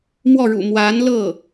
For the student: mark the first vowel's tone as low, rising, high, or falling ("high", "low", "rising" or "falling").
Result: falling